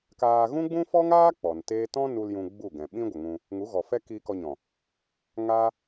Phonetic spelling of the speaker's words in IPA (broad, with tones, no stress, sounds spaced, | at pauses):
k aː˧ ɣ ũ˦ ɡ͡b ũ˦ f ɔ˦ ŋ aː˦ k͡p ɔ˨ n t eː˦ t ɔ̃˦ n u˧ l j ũ˧ ɡ͡b u˦˨ ɡ ɛ̃˨ ɓ ĩ˦ ɡʷ ə˨ ŋ ũ˧ | ŋ u˨˦ ɣ ɔ˨ f ɛ˦ k i˧ k ɔ˧ ɲ ɔ̃˨ | ŋ a˦